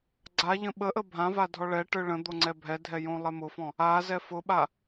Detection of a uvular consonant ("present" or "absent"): absent